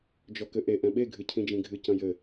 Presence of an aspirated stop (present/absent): present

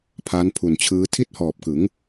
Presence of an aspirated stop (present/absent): present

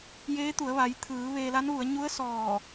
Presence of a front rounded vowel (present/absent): absent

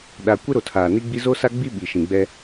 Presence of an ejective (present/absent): absent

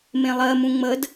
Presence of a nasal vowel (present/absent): present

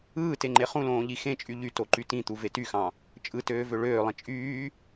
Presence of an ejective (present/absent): present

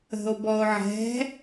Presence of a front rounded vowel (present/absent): absent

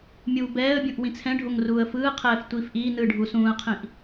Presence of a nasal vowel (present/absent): present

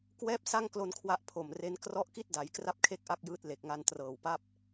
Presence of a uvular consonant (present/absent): absent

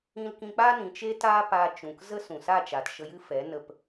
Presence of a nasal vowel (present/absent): present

